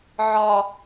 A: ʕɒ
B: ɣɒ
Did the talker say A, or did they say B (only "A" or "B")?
A